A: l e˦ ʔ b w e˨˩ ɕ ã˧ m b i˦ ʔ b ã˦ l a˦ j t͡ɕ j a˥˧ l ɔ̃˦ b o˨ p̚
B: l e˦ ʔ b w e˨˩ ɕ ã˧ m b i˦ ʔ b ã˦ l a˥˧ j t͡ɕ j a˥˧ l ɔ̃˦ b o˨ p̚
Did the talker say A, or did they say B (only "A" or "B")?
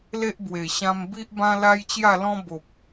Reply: A